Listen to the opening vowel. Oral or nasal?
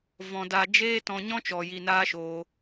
nasal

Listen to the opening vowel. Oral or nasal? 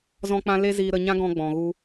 nasal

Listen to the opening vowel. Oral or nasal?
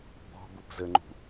oral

